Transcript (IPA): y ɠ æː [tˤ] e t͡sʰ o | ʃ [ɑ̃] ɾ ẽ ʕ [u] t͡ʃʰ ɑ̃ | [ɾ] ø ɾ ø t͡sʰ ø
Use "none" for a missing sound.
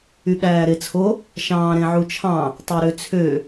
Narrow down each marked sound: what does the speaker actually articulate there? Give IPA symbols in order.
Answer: ɾ, ɑ̃ː, u, tˤ

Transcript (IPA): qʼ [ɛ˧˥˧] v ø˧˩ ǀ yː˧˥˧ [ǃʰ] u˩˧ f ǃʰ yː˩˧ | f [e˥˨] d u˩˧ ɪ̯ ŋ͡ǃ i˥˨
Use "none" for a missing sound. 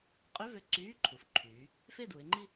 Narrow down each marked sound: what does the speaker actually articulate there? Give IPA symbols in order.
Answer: ø˧˥˧, ǃʰ, e˥˨

